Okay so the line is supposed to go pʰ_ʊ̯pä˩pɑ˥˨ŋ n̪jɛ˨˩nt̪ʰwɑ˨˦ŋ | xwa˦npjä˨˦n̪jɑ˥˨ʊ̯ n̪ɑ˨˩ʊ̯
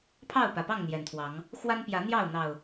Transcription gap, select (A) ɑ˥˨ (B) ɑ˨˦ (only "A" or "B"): A